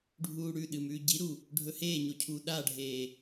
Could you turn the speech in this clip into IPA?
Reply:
ɖʱuːɽʉɗɨ mʉːɟiɾu | ɖʱɵheːɲo cʰuːɗaɖʱeː

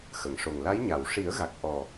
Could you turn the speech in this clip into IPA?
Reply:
xə˨˩˨ŋʂo˨˩ŋ la˧˥j ɲa˨˩˨w ʂi˨˩˦ə̯ɣa˨˩k̚ ʔɔ˨˩

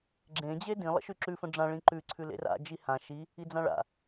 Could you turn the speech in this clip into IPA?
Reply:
ɡ͡ǁẽ d͡ʑedĩ lˠə̰ʃʉǁʉ fə̃ɖ͡ʐã ɭĩǃʉ ǀʰʉlḛra̰ d͡ʒihã ʃi | id͡zãɭa̰

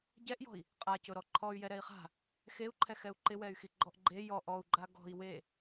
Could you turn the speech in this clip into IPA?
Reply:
ɟɛʔjɔ̤i̯ | qʼacʊɾɔ ǃʰɔy̯ jɛɾɛi̯χa̤ | xeu̯ǃʰɛ xɛu̯ǃɪwɛy̯xi ɡ͡ǃɔʔɡ͡ǃe jɔʔ ɔu̯ɡ͡ǃa ɡɔ̤i̯ we

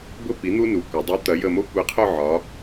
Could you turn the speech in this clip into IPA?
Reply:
bʊ˦ pi˩˥n̪u˦nu˩˥kʷɐ˩˧ dˤu˩˥t̪ɐ˩˧ jə˦˨mo˦ kʷi˩˥qʰʊ˦˨ʕɒ˩˧

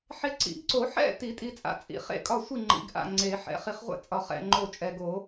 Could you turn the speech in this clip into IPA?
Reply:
ħe˧ ǀḭ˨˩˦ɡǀo˨˩˦ ħɛ̰˥˨ti˨˩˦ tʼi˧t͡sʼa̰˧ t͡sʼḭ˨˩˦ χḛ˥˨kʼɒ˥˨sʷi˥˨ ŋ͡ǃḭ˨˩˦ɡʔa̰˥˨ ŋ͡ǀe˨˩˦ħɛ̰˧ χi˧χʁʷɛ̰˥˨ t͡sʼɒ˨˩˦χ ɛ̰˥˨ ŋ͡ǃo˥˨t͡ʃʼɛ˧ ɡo˨˩˦

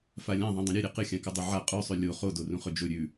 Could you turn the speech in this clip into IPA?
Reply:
falʲãðˤẽ dˤũɾʲʉɾʲe qɨxʲãkɨ dˤuʕa qʼʉsˤʉ lʲo χodo rũχɵd͡ʒɵ ɾʲʉ

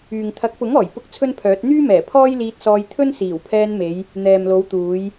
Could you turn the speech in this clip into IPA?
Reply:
yː˨ŋ t̪ʰɐ˨˥k̚pʊ˨˥ŋɔː˨˩j pʊ˥k̚t͡sʰɵ˥npʰœː˨˥t̚ n̪yː˥mɛː˨˩ pʰɔː˥jliː˧t̚sɔː˧j t̪ʰɵ˥nsiː˨˩wpʰɛː˧nme˨˧j | n̪ɛː˨mlo˨˧wt̪uː˨˧j

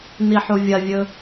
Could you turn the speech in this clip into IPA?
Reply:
niħuvʲɐvʲɵ

